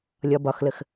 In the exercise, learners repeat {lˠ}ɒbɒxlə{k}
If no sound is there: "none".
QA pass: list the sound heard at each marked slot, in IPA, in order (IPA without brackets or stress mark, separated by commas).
lʲ, x